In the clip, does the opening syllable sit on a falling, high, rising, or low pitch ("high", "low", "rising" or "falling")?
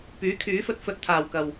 rising